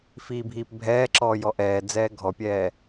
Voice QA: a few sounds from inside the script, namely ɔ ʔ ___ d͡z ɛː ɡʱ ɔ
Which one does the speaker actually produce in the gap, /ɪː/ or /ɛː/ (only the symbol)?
ɛː